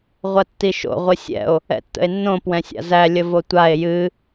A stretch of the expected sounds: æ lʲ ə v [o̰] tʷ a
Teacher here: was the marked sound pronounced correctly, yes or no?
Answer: no